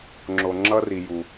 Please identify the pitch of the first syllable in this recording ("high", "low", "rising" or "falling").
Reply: low